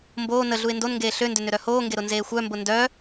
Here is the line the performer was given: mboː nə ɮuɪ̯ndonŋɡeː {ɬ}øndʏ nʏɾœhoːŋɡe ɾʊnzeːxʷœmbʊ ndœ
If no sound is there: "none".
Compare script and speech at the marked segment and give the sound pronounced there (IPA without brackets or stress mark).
ɬ